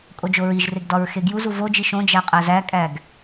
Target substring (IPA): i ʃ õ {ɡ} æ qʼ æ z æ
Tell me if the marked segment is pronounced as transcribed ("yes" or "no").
no